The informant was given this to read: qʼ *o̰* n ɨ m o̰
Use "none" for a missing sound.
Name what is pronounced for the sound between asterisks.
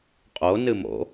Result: o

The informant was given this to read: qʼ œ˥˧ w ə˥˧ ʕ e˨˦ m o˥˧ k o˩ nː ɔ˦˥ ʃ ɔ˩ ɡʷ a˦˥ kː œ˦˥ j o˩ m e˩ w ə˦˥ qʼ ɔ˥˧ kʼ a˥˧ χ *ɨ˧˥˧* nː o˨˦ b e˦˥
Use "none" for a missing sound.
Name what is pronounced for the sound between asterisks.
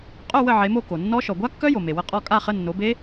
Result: ə˧˥˧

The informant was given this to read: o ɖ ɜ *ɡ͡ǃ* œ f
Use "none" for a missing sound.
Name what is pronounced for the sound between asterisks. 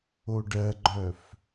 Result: ɡ͡ǃ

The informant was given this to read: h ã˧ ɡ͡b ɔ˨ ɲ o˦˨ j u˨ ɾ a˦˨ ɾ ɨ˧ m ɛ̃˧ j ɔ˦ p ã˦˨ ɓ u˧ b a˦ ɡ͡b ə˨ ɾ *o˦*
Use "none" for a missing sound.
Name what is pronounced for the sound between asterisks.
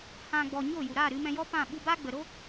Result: o˦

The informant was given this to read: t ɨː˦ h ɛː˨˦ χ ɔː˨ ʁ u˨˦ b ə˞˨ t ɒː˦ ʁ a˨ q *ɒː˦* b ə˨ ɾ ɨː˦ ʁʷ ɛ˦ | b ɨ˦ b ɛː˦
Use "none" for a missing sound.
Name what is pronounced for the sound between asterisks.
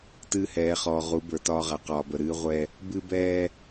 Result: ɒː˨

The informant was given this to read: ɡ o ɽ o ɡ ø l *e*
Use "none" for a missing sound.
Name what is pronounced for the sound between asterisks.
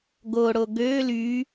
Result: y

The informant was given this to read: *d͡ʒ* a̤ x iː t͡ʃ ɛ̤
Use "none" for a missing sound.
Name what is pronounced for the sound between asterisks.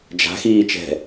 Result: d͡ʒ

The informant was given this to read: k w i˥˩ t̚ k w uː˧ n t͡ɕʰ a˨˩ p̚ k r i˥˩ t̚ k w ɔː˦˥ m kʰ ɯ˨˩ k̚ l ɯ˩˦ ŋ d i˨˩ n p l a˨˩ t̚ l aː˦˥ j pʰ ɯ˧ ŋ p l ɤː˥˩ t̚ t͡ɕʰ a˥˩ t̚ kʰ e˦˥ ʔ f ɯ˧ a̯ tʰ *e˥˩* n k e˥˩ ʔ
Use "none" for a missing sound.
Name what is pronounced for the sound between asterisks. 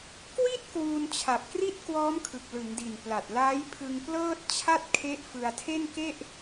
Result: e˥˩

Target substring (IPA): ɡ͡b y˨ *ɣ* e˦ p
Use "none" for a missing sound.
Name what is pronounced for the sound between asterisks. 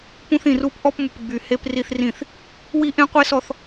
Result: h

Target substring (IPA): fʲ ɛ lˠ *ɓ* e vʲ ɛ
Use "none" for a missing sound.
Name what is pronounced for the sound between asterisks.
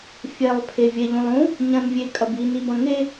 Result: pʰ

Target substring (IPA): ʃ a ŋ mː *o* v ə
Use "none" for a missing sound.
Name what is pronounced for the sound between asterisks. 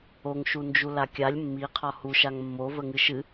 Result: o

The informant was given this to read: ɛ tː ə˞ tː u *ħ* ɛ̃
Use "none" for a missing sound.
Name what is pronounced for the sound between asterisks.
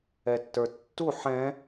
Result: ħ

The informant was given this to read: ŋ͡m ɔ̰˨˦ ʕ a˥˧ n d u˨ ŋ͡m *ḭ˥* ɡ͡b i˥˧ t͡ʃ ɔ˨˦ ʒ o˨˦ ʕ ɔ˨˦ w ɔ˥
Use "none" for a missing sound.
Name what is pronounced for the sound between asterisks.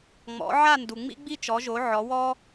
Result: ḭ˥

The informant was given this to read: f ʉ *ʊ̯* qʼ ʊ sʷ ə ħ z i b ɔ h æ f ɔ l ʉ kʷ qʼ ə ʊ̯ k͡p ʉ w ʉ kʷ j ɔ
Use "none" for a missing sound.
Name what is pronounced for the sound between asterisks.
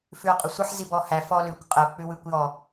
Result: ʊ̯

